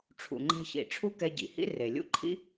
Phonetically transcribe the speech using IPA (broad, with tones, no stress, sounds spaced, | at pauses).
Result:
ʈ͡ʂʰ ṵ˩ ŋ͡ǃ ɛ̤˧ ç ḭ˩ ʈ͡ʂʰ u˥ k ɛ˧ ɟ ḭ˩ h ḭ˥ r e˩ lʲ ṵ˥ ǃʰ ḭ˥